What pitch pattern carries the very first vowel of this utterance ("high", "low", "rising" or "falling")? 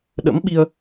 rising